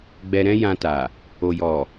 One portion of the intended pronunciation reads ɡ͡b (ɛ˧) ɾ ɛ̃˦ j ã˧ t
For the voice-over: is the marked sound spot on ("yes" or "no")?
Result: yes